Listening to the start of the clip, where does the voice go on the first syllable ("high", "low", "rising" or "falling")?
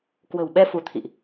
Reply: low